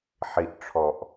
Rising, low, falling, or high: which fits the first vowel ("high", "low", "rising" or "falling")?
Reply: low